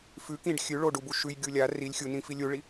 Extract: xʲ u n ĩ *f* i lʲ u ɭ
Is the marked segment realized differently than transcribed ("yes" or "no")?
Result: no